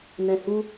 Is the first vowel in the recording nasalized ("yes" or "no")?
yes